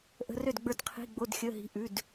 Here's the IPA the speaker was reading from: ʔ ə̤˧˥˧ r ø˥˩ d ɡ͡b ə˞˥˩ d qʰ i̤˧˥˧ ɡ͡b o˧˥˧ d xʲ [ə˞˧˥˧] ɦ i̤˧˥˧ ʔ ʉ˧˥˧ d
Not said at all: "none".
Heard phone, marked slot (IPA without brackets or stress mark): ə˧˥˧